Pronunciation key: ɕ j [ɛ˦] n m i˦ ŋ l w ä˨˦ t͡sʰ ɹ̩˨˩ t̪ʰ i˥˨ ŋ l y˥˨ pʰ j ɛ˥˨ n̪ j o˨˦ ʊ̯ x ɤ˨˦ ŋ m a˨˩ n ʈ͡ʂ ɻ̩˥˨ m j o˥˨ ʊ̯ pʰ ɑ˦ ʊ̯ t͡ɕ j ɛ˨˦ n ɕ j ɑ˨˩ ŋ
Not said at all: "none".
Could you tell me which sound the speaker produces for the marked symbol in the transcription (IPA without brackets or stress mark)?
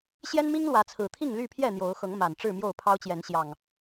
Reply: ɛ˦